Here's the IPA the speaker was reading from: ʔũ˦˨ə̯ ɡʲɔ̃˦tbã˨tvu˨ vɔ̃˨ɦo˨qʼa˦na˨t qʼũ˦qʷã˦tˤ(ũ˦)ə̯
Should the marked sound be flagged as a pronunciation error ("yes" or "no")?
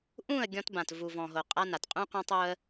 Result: yes